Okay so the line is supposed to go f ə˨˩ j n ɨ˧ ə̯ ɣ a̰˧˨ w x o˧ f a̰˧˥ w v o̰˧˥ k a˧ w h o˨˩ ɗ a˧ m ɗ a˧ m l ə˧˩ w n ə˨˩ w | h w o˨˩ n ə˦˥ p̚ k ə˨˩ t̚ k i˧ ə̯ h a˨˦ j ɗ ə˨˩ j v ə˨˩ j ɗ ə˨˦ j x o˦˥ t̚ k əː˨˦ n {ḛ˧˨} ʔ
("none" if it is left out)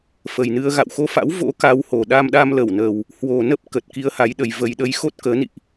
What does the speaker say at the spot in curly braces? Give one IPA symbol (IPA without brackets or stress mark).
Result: ḭ˧˨